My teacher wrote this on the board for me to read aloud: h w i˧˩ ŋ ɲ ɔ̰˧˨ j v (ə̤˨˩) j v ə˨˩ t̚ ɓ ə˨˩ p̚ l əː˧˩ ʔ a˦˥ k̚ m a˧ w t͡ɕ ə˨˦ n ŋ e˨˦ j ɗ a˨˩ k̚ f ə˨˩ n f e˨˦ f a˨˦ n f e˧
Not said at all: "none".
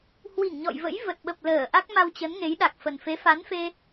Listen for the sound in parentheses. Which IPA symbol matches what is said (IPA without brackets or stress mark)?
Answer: ə̰˧˥